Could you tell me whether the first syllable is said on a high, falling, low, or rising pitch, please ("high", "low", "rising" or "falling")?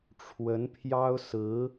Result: rising